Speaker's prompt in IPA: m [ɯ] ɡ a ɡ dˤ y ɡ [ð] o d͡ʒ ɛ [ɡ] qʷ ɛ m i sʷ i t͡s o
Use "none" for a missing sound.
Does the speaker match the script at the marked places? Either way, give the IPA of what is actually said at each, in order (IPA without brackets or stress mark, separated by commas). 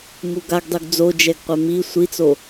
u, d͡z, ɡ